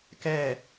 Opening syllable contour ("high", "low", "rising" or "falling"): falling